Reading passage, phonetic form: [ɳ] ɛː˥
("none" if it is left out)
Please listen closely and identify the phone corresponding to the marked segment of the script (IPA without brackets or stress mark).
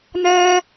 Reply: n